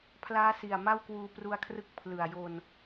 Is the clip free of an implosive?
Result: yes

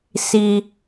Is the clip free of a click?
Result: yes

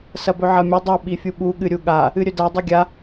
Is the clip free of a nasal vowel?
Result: yes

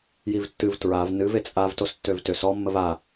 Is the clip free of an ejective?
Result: no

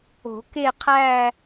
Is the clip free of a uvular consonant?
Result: no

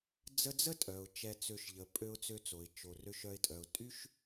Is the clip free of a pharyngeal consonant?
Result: yes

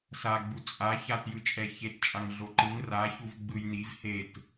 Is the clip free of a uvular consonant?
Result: yes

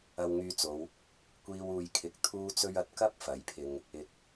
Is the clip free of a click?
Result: yes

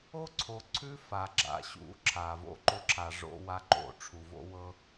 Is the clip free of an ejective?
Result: yes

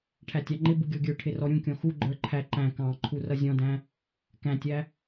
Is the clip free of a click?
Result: no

